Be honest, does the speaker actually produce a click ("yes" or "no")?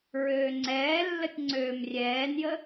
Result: yes